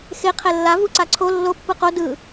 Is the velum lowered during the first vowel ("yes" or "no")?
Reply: no